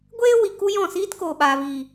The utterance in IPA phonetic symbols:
ɡʷ eː˦ w i˨ k u˦ j ɔ̃˦˨ s iː˦ t k oː˨ ɓ aː˨ v iː˨

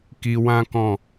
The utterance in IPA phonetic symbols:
k i˧ w ã˦ k ɔ̃˦˨

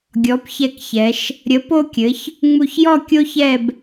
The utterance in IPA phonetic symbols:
ɡʲ ɔ˩˧ p ç ɛ˧˩ k ç ɛ˩˧ ʃ | ɾʲ ə˩˧ p o˧ kʲ ɘ˩˧ ç | ŋ͡m u˧˩ ç j ɔ˥˧ kʲ o˥ ç ɛ˥˧ b

